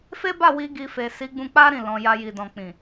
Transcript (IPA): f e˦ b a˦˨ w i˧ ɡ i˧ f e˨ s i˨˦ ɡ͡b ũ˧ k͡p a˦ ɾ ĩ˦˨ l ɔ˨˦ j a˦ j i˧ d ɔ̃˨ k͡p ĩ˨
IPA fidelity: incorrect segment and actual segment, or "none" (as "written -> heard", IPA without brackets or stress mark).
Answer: ɔ˨˦ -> ɔ̃˨˦